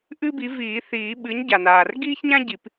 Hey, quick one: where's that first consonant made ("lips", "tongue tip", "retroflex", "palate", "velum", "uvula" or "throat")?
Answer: throat